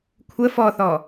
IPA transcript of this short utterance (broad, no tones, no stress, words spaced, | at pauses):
kʷʰə fɔθɔ